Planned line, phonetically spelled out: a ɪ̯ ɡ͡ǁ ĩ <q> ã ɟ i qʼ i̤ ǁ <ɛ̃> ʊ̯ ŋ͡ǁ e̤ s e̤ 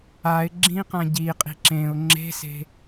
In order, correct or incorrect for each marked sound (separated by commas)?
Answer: correct, incorrect